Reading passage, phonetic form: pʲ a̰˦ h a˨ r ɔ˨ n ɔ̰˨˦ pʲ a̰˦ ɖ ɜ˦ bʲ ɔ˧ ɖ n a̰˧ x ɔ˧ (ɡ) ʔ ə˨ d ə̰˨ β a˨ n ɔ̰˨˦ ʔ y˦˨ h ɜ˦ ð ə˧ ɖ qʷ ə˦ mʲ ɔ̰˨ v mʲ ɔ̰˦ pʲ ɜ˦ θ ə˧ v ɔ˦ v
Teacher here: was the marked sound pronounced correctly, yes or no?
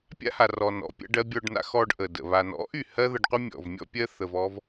no